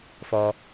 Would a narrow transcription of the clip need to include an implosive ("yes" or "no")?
no